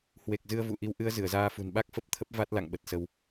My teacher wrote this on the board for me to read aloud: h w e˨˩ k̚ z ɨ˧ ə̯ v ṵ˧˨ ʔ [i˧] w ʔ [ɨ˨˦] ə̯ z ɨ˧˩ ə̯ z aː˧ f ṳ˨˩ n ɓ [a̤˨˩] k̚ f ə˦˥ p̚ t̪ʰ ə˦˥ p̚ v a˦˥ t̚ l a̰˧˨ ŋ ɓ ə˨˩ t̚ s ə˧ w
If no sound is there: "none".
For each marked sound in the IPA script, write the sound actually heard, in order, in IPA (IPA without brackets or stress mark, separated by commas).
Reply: i˧, ɨ˨˦, a˦˥